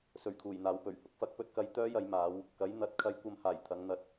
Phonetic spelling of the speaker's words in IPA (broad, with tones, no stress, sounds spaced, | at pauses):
s ɵ˨˩ ɥ kʰ uː˨˩ j n̪ aː˨ w p ɵ˨˩ ɥ h ʊ˨ k̚ f ɐ˥ k̚ p ɵ˧ t̚ k ɐ˧ j t̪ œː˥ j ɐ˨˧ j m aː˨˧ w | k ɐ˨˥ j n̪ ɐ˨˥ t̚ kʰ ɐ˧ j kʷ ɐ˧ m h aː˨˩ j t̪ʰ ɐ˨˧ ŋ n̪ ɐ˧ t̚